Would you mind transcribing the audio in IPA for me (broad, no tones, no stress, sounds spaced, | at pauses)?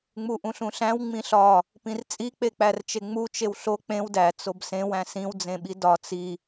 ŋ͡m u ʔ ũ ɬ ũ ɬ æ̃ w ŋ͡m ĩ ɬ ɒ | p ĩ r t͡sʼ i k͡p e k͡p æ r t͡ʃ e ŋ͡m u t͡ʃ e w ɬ o k͡p ẽ w d æ t͡s o b s ẽ w æ̃ s ĩ w d͡z ẽ ɓ i d ɒ t͡s i